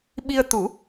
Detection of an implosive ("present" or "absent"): present